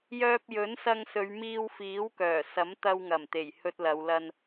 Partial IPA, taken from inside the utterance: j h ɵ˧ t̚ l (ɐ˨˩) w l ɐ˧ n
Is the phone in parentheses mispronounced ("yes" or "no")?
yes